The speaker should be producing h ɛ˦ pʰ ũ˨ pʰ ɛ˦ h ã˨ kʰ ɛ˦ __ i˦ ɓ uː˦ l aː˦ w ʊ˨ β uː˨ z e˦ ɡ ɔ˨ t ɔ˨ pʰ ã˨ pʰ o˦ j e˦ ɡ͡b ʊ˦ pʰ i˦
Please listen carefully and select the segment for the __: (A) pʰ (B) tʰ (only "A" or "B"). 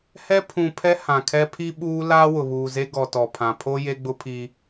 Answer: A